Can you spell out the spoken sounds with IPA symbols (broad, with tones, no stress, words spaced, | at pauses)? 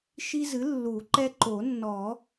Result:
ʃi˦zɨ˩˥lːu˨˩˦ǃɛ˦ ǃo˨˩˦nːɔ˨˩˦